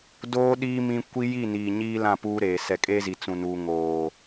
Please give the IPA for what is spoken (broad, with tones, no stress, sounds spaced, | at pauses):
d oː˦ ɗ iː˦ m ĩ˦ kʷ i˦ j i˦˨ n iː˨ ɲ iː˦ l ã˦˨ p uː˦ ɾ eː˨ s ɛ˨ kʼ e˦ z i˨ t͡s ũ˨ n uː˨ ŋ oː˨